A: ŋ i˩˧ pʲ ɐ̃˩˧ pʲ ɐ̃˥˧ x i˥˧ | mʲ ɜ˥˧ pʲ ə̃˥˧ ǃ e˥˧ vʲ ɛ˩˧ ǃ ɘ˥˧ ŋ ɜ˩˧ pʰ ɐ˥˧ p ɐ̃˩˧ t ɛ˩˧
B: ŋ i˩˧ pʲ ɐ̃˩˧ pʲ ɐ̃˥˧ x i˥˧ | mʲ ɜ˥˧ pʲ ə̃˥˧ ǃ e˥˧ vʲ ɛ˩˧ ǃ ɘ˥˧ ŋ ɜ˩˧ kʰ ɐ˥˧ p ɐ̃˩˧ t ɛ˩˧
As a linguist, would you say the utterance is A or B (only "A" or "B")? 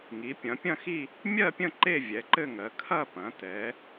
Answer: B